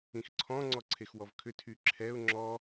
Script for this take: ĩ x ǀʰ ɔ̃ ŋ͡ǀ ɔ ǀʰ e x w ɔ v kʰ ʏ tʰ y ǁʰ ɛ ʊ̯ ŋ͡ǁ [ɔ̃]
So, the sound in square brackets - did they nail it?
no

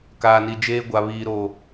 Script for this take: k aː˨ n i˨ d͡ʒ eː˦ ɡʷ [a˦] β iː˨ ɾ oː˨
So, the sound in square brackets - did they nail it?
no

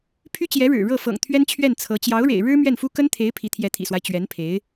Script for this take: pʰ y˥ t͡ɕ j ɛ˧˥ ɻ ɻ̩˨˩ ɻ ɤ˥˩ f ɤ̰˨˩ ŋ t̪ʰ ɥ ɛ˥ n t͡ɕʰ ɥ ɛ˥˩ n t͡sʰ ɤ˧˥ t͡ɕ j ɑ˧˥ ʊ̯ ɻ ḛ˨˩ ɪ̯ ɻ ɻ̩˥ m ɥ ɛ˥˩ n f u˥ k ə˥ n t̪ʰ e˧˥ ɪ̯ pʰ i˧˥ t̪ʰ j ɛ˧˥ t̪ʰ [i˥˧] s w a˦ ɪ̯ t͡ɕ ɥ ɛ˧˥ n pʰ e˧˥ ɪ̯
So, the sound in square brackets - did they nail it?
no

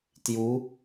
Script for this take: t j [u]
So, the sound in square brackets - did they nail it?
yes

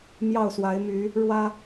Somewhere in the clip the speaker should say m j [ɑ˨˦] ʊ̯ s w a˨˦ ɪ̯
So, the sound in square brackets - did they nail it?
no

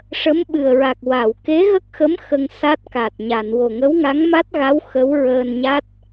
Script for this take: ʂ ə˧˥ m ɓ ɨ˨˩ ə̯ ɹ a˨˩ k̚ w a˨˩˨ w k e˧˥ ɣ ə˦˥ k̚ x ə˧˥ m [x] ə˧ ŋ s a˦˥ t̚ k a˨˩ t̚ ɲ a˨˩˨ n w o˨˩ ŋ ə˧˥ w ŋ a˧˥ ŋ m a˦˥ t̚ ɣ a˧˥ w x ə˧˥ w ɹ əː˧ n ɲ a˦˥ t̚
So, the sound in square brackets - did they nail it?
yes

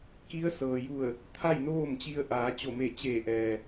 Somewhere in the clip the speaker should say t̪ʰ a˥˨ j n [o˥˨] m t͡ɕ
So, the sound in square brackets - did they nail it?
no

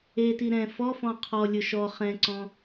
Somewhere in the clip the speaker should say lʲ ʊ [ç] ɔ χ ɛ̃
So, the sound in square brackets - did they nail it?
no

